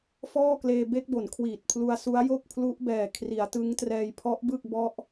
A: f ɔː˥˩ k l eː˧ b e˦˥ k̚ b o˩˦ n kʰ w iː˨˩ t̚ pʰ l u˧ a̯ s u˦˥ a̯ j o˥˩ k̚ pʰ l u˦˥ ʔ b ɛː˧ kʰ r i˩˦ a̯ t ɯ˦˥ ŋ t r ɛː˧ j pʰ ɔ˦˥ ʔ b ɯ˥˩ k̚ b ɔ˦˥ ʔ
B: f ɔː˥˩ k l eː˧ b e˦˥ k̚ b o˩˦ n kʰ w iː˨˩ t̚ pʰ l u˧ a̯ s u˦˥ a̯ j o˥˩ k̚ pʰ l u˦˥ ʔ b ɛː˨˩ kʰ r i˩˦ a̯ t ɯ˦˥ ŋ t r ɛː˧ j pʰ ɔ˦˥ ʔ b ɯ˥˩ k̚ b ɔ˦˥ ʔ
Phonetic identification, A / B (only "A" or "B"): B